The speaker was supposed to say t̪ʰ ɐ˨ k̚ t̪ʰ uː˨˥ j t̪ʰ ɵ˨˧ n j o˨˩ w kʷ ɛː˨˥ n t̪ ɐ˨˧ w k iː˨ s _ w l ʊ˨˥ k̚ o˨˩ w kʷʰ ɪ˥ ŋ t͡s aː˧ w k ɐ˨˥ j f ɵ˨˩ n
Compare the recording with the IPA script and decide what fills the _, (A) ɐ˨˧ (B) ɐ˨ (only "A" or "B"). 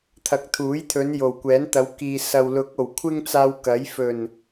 B